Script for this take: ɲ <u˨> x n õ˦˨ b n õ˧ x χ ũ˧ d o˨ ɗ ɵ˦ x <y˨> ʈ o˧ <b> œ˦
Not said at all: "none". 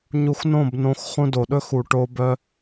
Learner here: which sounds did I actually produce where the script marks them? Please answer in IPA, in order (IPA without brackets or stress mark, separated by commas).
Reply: u˧, u˨, b